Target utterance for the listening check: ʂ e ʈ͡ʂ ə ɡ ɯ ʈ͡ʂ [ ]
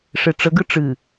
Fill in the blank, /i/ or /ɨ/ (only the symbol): ɨ